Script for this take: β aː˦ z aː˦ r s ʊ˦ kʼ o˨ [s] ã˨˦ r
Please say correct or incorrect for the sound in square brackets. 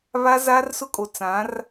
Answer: incorrect